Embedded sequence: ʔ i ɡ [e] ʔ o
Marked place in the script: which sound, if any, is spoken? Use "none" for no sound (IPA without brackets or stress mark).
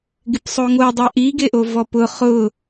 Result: e